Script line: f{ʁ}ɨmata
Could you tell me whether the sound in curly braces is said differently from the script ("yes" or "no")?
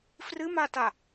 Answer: yes